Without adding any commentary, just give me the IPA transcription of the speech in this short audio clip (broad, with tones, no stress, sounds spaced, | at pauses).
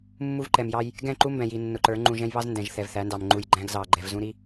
mː u˦ v ǃ ɛ˨ m j ɑ˦ j | ɡ ɛ̃˦˨ ǃ u˦ m b ɛ̃˨ j i˨ nː ʊ˨ ǃ ə˞˨˦ ŋ͡ǃ ũ˨ ʒ ɛ̃˦ j β ɑ˦ z n d ɛ̃˨ ʒ θ ɛ˨ v θ æ˨˦ n d ɑ˨ m ŋ͡ǃ u˨ j ɡ͡ǃ æ̃˦ ɡ z ɑ˨ ɡ͡ǃ ɛ˨ v z ũ˦ ɾ i˦